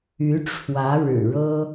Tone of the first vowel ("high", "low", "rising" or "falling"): rising